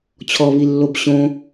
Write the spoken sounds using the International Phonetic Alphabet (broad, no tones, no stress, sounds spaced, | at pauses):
t͡ɕʰ ɔ β i lː o b ɕ õ